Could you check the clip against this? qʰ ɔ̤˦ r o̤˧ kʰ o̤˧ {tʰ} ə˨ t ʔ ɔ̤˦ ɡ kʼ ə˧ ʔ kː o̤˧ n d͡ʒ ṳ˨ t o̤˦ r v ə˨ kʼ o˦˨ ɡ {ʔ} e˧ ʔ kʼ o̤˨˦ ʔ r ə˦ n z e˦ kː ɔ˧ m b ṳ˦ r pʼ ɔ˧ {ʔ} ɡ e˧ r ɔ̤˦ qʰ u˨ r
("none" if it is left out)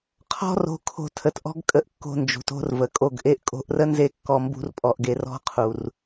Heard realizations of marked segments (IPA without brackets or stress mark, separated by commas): tʰ, ʔ, ʔ